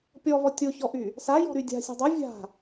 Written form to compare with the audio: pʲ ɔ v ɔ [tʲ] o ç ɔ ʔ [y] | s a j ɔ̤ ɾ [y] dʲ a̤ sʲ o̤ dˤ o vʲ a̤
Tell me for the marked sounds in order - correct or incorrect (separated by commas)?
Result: correct, correct, correct